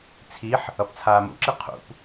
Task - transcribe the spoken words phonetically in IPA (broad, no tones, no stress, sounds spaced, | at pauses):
t͡sʰ i ħ | ʌ p t͡sʰ aː m ṵ ǁ i qʰ ṵ p